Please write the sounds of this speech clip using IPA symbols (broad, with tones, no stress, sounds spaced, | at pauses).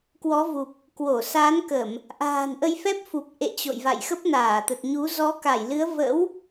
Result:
k w ɔ˨˦ v u˨˩ p̚ | k w o˧˩ s aː˨˦ n k ə˧˩˨ m | ʔ a̤ː˨˩ n ʔ ə˧ j f ɛ˦˥ p̚ f u˨˩ p̚ ʔ ḛ˧˨ t͡ɕ o̰˧˨ j v a̰˧˨ j x ə˦˥ p̚ n aː˧˩ t̪ ə˨˩ t̚ ɲ u˨˦ z ɔ˨˦ k a˧˩ j l ɨ˨˦ ə̯ v ə̰˧˥ w